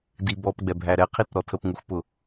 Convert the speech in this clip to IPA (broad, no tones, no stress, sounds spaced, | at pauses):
d i b ɔ p ɡ͡b ɛ bʱ æ ɾ ɛ qʰ i t ɾ ɔ tʰ ə p ŋ u x p ʊ